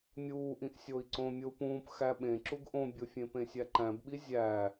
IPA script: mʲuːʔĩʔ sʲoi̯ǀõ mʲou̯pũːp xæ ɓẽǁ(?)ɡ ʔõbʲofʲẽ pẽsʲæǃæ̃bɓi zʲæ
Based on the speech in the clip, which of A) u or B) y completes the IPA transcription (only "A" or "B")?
A